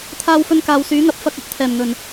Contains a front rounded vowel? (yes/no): yes